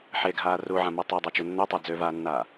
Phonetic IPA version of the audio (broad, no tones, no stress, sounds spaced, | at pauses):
ħ e ɡʱ aː r u ʕ ã m o tˤ a dˤ a t͡ʃ u nː ø tˤ œ d͡z ø v aː nː aː